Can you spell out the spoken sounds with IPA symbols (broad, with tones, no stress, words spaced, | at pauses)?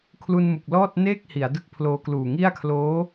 kʰlu˧nmu˨˩k̚ lɔː˥˩t̚neː˥˩k̚ hi˩˦a̯dɯ˦˥k̚pʰloː˧kluː˨˩ ŋi˥˩a̯kʰloː˦˥